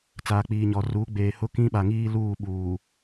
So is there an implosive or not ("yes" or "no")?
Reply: yes